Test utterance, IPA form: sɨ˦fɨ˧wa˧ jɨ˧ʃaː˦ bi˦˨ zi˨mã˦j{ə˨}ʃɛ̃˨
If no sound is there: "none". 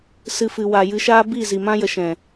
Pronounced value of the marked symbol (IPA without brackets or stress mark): ə˨